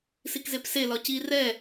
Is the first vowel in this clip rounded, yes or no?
no